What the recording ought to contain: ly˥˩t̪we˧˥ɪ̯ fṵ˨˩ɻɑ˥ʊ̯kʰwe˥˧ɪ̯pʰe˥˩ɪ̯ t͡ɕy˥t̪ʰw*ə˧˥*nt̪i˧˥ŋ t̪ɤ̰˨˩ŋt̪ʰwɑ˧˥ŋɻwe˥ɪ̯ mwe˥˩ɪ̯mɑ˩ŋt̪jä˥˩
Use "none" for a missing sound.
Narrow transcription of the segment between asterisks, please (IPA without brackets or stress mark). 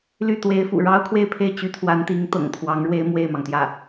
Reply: a˧˥